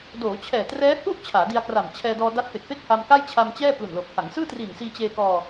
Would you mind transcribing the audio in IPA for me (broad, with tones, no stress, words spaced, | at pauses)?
doː˩˦ t͡ɕʰɛː˨˩trɛː˦˥ hu˥˩ʔ t͡ɕʰaː˩˦di˧a̯kra˨˩m t͡ɕʰɛː˧dɔː˧ da˦˥t̚pe˨˩k̚pe˥˩k̚ ha˧mka˥˩jt͡ɕʰa˧mt͡ɕɛː˥˩ plu˨˩nlo˨˩k̚ha˩˦ŋsɯː˥˩ tri˨˩nsiː˧ t͡ɕeː˧kɔː˧